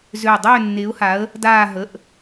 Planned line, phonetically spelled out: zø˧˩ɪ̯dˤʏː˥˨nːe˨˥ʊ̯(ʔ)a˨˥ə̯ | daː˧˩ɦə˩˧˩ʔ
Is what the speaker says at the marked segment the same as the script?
no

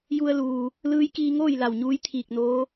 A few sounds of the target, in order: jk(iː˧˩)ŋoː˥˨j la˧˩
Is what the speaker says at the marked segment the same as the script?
no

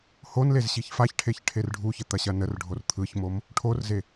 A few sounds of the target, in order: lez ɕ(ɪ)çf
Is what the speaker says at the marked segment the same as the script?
no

